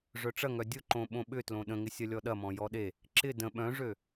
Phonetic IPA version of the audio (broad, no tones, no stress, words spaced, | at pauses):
ʐœʈ͡ʂɐŋœ dʲʊǃõ ɓõɓʏtlõ ɗə̃ŋɪsʲɐ lʲɔɗɐmɔ̃ jɔɗe | ǁɪ də̃ ɓœ̃ʐø